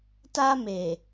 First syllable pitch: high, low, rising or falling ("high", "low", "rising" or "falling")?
high